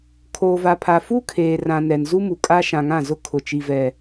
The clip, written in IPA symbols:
kʰ oː˨ v a˨ pʰ a˨ f u˦ kʰ eː˨ r ã˨ n ɛ˨ n z u˦ m u˨ kʼ a˦ ʃ ã˨ ŋ ã˦˨ z ʊ˦ kʰ ʊ˨ t͡ʃ i˨ v ɛ˨

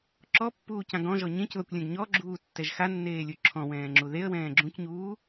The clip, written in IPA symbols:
ǁ ɔ pː uː c ã ɡ ɔ̃ ʒ ɔ ɲ ẽ c ð ɔ kʷ lʲ ɛ̃ ɡ ɲ ɔ ɡ͡ǁ uː tː ɛ ʒ x a nː eː lʲ u ǁʰ ɔ̃ w ɛ̃ː ŋ͡ǁ u ð e ə̯ w ɛ̃ː ɡ͡ǁ ũ c ɲ uː

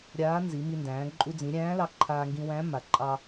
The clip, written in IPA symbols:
ɾʲ aː˧˥ n z i˩˧ m i˧ n d æ̃ː˩˧ ǃʼ u˧ d͡z ĩ˩˧ ɾʲ æ̃ː˧˥ l ɑ˧ ǃʰ aː˧ ŋ ɡ ĩ˧ w æ̃˧˥ m a˩ ǃʼ ɑ˧

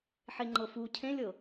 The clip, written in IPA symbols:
ħ e ŋ͡ǃ ɤ f u cʰ ẽ lʲ ɤ

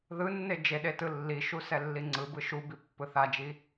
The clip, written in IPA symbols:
ð ɯ nː e d͡ʒ e ɗ e t ɯ lː i ʃ u s ɛ lː i ŋ͡ǀ ɯ b ɯ ʃ u b i pː ɯ θ a d͡ʒ i

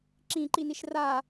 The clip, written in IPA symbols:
ǁ ĩ ǃ i n i ʃ r a

